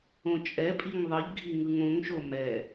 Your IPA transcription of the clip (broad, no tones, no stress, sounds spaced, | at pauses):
õ t͡ʃʼ ɛ pʼ i ŋ ðˤ ɯ ʎ ɡʱ i ŋ ɯ ŋ õ ŋ ʃ o m ɛ